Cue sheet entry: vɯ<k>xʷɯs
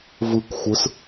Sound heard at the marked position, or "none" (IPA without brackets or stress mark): k